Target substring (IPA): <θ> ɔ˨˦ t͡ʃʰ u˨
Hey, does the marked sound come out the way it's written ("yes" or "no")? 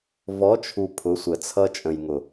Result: no